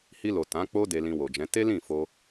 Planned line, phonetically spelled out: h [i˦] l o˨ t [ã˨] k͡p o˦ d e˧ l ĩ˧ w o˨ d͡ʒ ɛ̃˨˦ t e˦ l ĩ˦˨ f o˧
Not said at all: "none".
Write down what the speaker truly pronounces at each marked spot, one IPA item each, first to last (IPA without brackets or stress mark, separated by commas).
i˧, ã˨˦